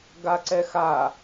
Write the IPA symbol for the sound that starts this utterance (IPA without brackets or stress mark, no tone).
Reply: ɡ